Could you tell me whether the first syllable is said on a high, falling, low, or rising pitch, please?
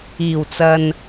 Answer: low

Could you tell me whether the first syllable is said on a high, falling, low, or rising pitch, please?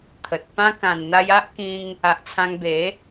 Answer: low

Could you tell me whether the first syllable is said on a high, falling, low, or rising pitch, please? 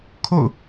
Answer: falling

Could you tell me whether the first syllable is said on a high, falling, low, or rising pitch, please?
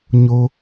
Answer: low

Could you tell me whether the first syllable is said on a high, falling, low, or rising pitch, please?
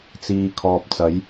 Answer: low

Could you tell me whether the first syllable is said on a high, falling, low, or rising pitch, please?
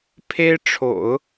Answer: high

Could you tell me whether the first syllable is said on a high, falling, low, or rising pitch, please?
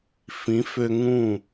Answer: rising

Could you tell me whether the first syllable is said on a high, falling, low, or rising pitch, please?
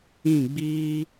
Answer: falling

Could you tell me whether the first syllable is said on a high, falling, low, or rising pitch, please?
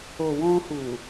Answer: low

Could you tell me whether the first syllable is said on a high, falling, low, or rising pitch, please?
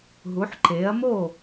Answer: rising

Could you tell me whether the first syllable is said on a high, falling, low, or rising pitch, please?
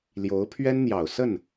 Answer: rising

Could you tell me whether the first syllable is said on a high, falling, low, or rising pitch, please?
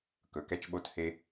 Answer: low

